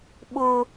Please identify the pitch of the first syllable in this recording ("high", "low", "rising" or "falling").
high